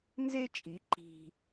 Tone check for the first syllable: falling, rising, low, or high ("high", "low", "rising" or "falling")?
high